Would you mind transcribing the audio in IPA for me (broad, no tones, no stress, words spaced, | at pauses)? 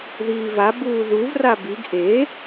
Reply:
ðiːva buːðuv rabiɡ ʔe